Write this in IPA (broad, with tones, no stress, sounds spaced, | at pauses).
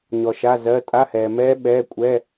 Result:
ɲ ɔ˨ ʃ a˧˥˧ z ɜ˧˥˧ tʼ a˧˥˧ h ɛː˨ m ɛː˦˥ ɓ ɛː˧˥˧ kʷʼ ɛ˧˥˧